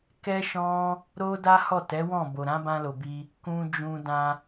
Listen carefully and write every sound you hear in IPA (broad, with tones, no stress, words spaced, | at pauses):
kɛ˦ʃɔ̃˦ | ɾo˦da˦hɔ˦˨ tɛ˨˦wɔ̃˦˨bo˨ɾã˨˦ bã˧lo˨bi˧ | kũ˧d͡ʒũ˧ dã˧